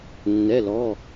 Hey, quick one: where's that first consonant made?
tongue tip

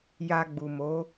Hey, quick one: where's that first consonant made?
palate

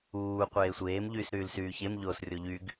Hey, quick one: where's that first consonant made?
uvula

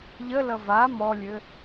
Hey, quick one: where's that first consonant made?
palate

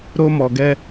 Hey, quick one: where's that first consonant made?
tongue tip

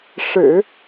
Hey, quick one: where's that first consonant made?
retroflex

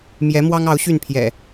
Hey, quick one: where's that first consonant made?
lips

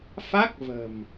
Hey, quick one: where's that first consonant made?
lips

